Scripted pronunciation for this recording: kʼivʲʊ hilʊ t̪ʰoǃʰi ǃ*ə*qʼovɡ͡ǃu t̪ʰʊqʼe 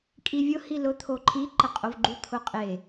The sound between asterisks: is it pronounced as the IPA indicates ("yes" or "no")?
yes